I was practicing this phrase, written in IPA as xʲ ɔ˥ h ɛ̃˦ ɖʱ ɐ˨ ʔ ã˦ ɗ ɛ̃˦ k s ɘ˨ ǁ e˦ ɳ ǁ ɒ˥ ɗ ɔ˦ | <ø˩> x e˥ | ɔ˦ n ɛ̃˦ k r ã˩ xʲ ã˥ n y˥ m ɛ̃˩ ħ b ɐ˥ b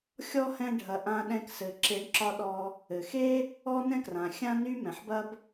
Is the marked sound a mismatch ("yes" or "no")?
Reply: yes